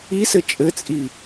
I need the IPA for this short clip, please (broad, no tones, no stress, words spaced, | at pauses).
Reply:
isɘ t͡ʃʼɘt͡sʼi